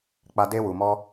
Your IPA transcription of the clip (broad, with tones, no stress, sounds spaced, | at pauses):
k͡p a˧ d e˧ w u˨ m ɔ˧